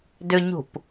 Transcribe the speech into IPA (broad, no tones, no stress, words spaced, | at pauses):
dʏɲṳp